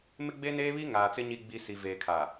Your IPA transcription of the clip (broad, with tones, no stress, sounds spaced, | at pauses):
m ɪ˦ ɡ͡b e˦ n eː˦ β i˦ ŋ aː˨ t͡s ɪ˦ ɲ i˨ ɡ͡b i˨ s i˨ v eː˨ kʰ a˨